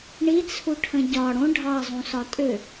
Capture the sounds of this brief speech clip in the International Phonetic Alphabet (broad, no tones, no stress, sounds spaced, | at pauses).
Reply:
ɳ i t͡sʰ u ʈʰ ə̃ ɟ ɒ ɽ õ ɖʱ ɑ zˤ ũ s ɒ tʼ ʏ